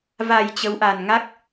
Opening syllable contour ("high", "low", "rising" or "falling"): low